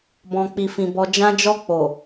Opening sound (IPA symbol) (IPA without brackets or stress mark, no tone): b